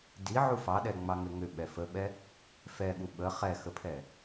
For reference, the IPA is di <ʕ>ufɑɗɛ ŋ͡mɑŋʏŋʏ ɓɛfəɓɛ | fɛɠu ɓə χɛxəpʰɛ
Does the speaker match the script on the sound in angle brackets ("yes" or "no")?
yes